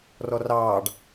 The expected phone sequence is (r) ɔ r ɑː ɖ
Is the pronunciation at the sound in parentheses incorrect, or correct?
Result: correct